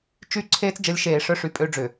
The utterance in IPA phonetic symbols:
t͡ʃy˦˨ ǀʰeː˦t͡sd͡ʒə˨˦lʲ ʃeː˨ʂœ˦ʂy˨ pʼø˦ɖ͡ʐʏ˨

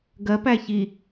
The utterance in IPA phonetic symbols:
ɡɜpæ çi

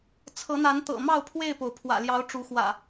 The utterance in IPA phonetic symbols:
t͡sʰɤ˨˦n̪a˨˦nt̪ɤ̰˨˩mɑ˥˨ʊ̯ pʰwe˥˨ɪ̯po˩ʊ̯pʰwä̰˨˩ljɑ˨˦ʊ̯ ʈ͡ʂu˨˦xwä̰˨˩

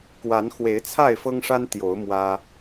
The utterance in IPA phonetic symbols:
kwa˨˦n xwe˨˦ɪ̯t͡sʰa˥˨ɪ̯fɤ˦ŋʂa˦n t̪jo˨˦ʊ̯ mwä˦

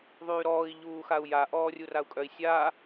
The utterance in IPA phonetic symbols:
ðˤyːɾɔːi̯ ʎuːxau̯ja ʔɔːrʲurau̯kʼœi̯ sʲa

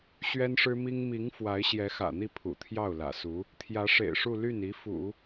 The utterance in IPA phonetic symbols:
ɕɥɛ˥nʂɻ̩˥mi˥ŋ mi˧˥ŋ fwa˧˥ɪ̯ɕjɛ˧˥xä̰˨˩n̪i˥˩ pʰṵ˨˩t̪ʰjɑ˥˩ʊ̯lä̰˨˩su˧˥ | t̪ʰjä˧˥ʂḛ˨˩ɪ̯ʂu˥˧ ly˥˩ni˧˥ fṵ˨˩˦

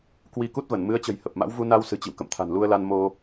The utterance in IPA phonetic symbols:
kwi˧ku˦˥t̚və˧˩n mɨ˨˦ə̯t͡ɕə̤˨˩j hə˨˩p̚ma̰˧˥w vu˧na˧w sɨ̤˨˩t͡ɕḭ˧˨w kə̰˧˨mt̪ʰa̤˨˩nlu˧ə̯la˧n mo˧

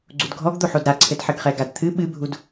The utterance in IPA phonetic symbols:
ɡ͡ǀudɡʱɔɡd̪oħod ɾaǀʰɘdħɘɡχɛ ɡadt̪ʰɨ ɓɨbʱud

